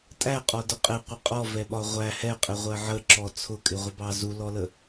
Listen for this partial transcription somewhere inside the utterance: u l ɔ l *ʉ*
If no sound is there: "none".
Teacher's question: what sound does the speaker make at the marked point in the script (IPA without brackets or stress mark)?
ə